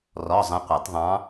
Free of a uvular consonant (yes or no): no